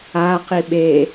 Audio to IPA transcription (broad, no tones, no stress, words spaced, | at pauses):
a qiɓe